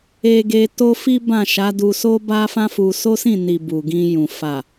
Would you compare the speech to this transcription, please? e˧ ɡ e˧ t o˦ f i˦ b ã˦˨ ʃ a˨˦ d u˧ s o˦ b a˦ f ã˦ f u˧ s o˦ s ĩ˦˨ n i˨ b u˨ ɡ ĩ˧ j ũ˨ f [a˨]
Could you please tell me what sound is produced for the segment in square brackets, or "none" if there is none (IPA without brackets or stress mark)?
a˨